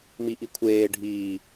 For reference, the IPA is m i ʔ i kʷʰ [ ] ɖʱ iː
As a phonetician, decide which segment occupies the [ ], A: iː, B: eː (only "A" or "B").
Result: B